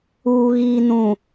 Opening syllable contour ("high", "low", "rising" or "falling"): low